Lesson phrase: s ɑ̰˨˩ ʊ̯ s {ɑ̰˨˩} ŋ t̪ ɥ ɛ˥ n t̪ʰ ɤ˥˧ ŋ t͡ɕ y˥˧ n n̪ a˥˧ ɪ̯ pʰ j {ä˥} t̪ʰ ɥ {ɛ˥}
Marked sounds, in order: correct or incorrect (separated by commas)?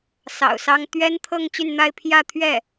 incorrect, incorrect, incorrect